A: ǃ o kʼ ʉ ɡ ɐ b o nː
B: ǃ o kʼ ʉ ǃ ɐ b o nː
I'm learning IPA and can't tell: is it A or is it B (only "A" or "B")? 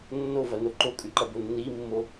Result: B